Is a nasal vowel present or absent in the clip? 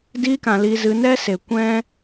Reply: present